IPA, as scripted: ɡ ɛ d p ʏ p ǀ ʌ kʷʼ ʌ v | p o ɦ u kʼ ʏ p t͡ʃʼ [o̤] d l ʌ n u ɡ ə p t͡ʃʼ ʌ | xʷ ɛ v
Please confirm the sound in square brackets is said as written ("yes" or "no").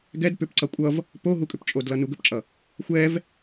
no